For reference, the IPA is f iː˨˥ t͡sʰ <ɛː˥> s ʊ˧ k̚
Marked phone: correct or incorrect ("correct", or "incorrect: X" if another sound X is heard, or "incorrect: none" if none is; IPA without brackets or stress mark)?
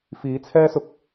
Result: correct